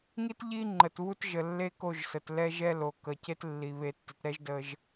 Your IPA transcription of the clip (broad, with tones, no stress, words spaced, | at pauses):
ŋi˦tʎi˦ ŋ͡ǃə˨tβu˦t ʒə˨lːe˦ko˦˨ʒsə˨t lɛ˦ʒɛ˦ lo˨kə˨ce˦tlːi˨ βe˨tːɪ˨tɾɛ˦ʒ də˦ʒ